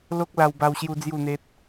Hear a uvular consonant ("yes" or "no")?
no